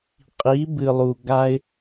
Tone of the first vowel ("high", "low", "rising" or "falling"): rising